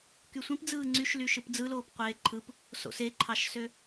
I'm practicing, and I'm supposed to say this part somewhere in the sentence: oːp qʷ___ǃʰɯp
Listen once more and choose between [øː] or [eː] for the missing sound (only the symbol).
eː